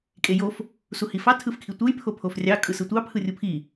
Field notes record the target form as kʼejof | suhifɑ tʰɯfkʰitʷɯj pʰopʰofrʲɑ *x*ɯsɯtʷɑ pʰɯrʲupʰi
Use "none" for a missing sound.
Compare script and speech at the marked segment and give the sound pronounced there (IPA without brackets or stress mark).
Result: kʼ